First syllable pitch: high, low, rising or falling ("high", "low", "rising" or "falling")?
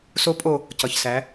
high